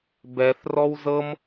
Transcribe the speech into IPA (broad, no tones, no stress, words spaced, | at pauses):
bɛθrɔw zɤm